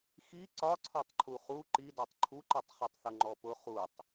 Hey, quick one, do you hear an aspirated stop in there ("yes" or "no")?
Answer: yes